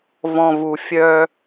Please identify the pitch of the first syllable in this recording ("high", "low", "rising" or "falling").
low